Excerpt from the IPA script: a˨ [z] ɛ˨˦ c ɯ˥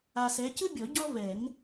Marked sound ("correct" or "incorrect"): incorrect